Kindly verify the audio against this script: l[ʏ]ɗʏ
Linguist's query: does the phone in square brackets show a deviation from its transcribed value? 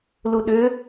yes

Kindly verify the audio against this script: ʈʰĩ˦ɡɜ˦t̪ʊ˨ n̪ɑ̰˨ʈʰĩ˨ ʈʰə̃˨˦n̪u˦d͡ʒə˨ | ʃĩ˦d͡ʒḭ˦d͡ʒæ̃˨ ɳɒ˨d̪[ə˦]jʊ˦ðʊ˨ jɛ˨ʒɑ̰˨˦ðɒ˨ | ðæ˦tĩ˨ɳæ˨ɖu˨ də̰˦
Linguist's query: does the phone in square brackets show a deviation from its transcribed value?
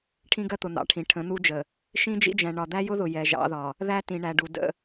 yes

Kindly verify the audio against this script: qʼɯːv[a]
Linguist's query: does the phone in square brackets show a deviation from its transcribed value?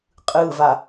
no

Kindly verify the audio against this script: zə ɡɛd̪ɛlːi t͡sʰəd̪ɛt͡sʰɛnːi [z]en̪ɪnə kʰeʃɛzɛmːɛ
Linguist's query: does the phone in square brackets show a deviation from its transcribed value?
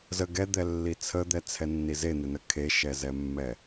no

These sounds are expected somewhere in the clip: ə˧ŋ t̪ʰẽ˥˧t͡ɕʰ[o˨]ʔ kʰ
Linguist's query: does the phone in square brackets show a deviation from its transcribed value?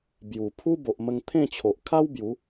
no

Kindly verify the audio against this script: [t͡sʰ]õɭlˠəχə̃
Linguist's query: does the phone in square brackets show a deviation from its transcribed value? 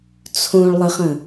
no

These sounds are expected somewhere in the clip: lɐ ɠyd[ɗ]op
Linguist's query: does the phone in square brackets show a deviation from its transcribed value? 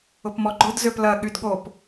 yes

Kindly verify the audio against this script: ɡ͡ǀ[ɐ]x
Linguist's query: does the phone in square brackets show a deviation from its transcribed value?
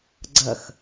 no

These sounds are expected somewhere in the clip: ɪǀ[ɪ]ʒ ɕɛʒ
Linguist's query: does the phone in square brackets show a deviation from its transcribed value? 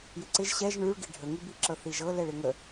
no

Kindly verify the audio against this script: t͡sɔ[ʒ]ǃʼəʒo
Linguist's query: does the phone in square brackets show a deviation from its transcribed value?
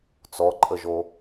yes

